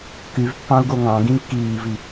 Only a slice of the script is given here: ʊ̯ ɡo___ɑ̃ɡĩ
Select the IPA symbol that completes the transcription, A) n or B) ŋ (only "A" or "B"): B